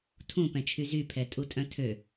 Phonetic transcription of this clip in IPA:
tʰ ũ p ɛ̃ t͡ʃʰ y z y pʰ ɛ tʼ u tʼ œ̃ tʰ ø

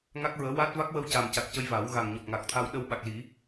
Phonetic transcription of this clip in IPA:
ŋ a˦˥ k̚ ɹ əː˧˥ w a˦˥ t̚ v a˦˥ k̚ w ə˧ w c a˨˩ m c a˨˩ k̚ c ə˧ j v a˨˩˦ w ɣ a˨˩ ŋ ɲ ɔ˨˩ p̚ ŋ a˨˩ k̚ t̪ʰ a˧ w ɗ ə˧ w ɓ a˨˩ k̚ l i˨˩˦

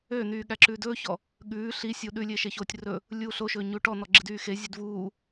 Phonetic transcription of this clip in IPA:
ø n̪ yː ɠ æ ǁ ʉː d ɵː ç ɔ | ɠ ʉː ɬ i sʲ u ɗ ʉ lʲ e ʃ e ç oː tʲ r ɵ | lʲ uː ɬ o ʃ ɵː ɲ u ʈ ɔ n̪ ɔ ɡ͡ǁ i d yː x e zʲ ʉ d v uː

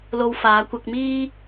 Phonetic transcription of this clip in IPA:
l o˧ w f aː˨˧ kʷ ɐ˧ k̚ m iː˥

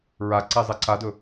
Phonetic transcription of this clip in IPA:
ɹ a ǀ e zˤ e ǀ a d ɵ

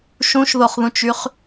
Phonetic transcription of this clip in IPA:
ʃ ũ ʃ ð o χ ð ũ t͡ʃ y χ

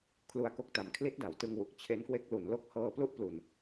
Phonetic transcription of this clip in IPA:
kʰ l u˧ a̯ k o˦˥ k̚ t a˩˦ m kʰ l i˦˥ t̚ d a˩˦ w t ɯ˧ ŋ w u˨˩ k̚ t͡ɕʰ e˦˥ n k w e˦˥ k̚ l u˩˦ n l o˦˥ k̚ h ɤː˧ p l u˥˩ ʔ p l u˨˩ n

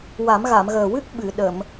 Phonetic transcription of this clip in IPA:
w a˨˩˦ m ɣ a˨˩˨ m ɣ əː˨˩ w ɨ˦˥ k̚ ɓ ɨ˨˩˨ ɗ əː˨˩˨ m

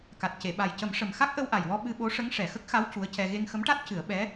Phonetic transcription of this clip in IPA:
k a˨˩ t̚ c e˨˩˨ ɓ a˨˩ j c ə˨˩˦ m ʂ ə˨˩ m x a˦˥ k̚ ʔ ə˧ w ʔ a˨˩ j w ɔ˧ ɓ ɨ˧ ɓ o˧˥ ʂ ə˧˥ ŋ ʂ ɛ˨˩ x ə˦˥ k̚ x a˧˥ w c u˧˥ ə̯ c ɛ˧ ɣ e˧ ŋ x ə˧˥ m ʈ a˦˥ t̚ c ɨ˨˩˦ ə̯ ɓ ɛ˧˥

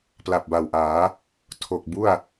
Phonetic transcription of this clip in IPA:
p l a˨˩ p̚ b a˨˩ w ʔ aː˩˦ | tʰ o˨˩ k̚ b u˥˩ a̯

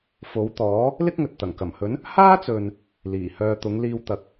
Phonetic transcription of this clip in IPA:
f o˨˥ w t̪ ɔː˨˥ | l ɪ˥ k̚ ŋ ɵ˨ t̚ t̪ ɐ˨˩ ŋ k ɐ˨˩ m h ɵ˨˥ n | h aː˥ t͡s ɵ˨ n | l iː˨˩ h œː˧ t̪ ʊ˨˥ ŋ l iː˧ w t̪ ɐ˨ k̚

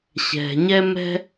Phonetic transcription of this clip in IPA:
ɕ ɛ̤˩ ɲ ɛ˦ m ɛ̤˦

